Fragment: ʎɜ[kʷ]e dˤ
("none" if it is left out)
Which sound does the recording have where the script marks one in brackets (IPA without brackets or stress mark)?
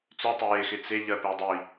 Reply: p